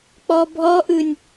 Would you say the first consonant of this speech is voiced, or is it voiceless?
voiceless